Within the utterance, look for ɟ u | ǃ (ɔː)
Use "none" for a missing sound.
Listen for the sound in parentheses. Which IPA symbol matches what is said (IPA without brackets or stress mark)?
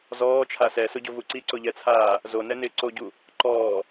ɔː